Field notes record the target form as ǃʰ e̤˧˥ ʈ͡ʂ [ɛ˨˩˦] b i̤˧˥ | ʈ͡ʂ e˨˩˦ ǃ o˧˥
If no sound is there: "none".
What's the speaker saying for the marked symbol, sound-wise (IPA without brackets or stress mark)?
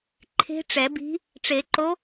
ɛ˨˩˦